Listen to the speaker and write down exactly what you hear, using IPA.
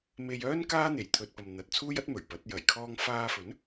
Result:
m e˧ j œː˥ n k aː˥ n̪ e˨˩ j t̪ʰ ɵ˨ t̚ p ɐ˨ m n̪ ɐ˨ t̚ t͡sʰ uː˥ j ɐ˥ t̚ m ɵ˨˩ ɥ p ɐ˨˥ t̚ j ɐ˨˩ j kʰ ɔː˧ ŋ f aː˧ f ɵ˨˥ n

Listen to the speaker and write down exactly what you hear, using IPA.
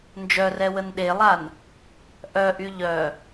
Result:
n d͡ʒ œ r ɛ w ə n ɗ e lˠ a n | ʔ œ ʔ y ʎ œ

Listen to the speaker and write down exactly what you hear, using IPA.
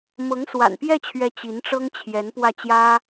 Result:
m ɤ˧˥ ŋ s w a̰˨˩ n p j ɛ˥˩ t͡ɕʰ ɥ ɛ˧˥ t͡ɕ i˧˥ n ʈ͡ʂ ɤ˥ ŋ t͡ɕʰ j ɛ˧˥ n p w ä˥˩ t͡ɕ j ä˥

